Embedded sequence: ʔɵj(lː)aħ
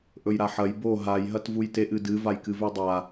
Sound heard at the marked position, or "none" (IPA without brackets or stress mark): ɾ